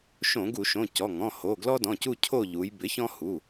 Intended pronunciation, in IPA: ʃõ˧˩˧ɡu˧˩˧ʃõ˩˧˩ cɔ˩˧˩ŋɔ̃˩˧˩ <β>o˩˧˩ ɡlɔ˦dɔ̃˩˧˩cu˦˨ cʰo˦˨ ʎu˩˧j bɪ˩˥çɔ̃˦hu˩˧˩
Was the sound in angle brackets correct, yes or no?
no